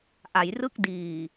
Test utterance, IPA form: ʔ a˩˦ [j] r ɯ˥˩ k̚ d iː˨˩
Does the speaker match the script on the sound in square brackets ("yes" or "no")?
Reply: yes